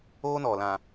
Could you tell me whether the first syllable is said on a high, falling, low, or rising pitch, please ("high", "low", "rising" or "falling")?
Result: high